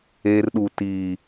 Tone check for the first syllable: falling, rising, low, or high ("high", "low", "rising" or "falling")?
high